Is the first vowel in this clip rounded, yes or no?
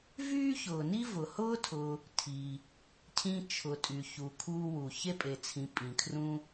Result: yes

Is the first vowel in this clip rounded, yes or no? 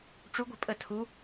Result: yes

